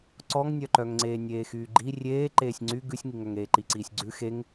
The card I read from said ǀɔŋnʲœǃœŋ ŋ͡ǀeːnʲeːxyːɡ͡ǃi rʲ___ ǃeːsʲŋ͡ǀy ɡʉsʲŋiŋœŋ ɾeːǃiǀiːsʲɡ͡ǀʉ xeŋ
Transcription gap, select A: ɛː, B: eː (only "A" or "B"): B